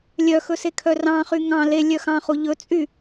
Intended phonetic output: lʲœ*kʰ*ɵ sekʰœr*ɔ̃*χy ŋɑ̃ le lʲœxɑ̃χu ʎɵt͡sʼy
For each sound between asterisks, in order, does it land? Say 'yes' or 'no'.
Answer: no, no

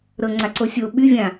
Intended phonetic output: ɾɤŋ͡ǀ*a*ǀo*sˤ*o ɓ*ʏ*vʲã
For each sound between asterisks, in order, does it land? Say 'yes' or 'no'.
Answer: yes, no, no

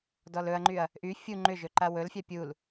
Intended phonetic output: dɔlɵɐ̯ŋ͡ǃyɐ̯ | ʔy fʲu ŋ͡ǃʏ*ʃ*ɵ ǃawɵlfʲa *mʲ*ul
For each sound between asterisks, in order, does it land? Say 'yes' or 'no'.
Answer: no, no

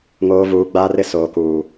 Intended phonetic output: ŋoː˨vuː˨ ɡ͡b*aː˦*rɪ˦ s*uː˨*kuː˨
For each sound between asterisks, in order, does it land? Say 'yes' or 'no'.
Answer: yes, no

